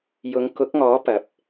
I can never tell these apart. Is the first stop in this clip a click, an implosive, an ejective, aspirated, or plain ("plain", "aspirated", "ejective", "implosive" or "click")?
plain